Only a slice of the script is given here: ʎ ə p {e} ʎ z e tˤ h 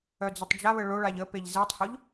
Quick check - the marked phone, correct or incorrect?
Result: correct